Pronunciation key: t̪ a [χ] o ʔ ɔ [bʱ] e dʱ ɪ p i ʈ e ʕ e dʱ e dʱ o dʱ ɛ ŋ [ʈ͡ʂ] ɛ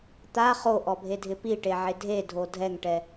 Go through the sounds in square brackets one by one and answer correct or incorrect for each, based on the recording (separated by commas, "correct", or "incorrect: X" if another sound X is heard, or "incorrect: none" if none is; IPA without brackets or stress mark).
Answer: correct, correct, incorrect: ʈ